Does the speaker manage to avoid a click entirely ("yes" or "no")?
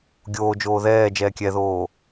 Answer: yes